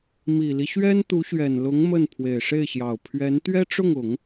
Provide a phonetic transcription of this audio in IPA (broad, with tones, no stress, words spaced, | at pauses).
mi˨˩li˦ ɕɥɛ˥nt̪u˧˥ɕɥɛ˨˩nlʊ˧˥ŋ mə˥˩n pʰwe˨˩ɪ̯ʂe˥˩ɪ̯ɕjɑ˨˩ʊ̯ pʰɥɛ˧˥n t̪ɥɛ˥ʈ͡ʂʊ˥˩ŋʊ˨˩˦ŋ